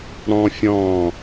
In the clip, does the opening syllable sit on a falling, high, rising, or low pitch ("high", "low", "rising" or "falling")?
high